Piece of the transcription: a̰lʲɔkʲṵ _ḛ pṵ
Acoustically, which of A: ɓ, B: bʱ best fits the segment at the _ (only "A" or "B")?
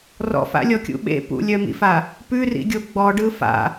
A